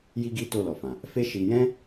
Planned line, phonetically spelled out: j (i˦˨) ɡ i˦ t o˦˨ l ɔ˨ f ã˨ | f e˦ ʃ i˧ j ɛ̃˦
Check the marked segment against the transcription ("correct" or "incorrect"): incorrect